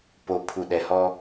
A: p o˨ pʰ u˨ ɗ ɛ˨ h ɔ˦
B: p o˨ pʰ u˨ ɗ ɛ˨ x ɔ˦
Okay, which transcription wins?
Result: A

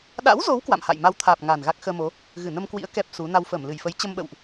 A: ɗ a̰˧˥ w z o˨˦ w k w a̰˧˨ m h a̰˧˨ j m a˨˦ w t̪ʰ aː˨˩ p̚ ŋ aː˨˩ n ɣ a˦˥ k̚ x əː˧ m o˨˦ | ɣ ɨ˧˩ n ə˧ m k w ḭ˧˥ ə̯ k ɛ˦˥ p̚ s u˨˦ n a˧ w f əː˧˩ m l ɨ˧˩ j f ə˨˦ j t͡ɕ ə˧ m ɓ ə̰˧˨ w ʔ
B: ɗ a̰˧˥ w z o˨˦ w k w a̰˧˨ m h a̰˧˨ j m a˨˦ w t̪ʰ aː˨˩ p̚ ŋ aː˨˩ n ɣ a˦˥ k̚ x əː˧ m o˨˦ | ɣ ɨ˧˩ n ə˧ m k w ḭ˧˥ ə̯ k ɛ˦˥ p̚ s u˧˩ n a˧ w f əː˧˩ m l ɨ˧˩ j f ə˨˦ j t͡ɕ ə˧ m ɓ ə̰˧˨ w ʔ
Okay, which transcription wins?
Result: A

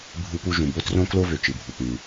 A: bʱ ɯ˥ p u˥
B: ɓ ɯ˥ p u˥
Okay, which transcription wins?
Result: A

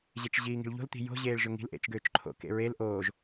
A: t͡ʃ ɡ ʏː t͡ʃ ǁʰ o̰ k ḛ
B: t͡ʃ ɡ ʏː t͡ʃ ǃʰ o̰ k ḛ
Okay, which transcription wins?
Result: B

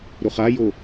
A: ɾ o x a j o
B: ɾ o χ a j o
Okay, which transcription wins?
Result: B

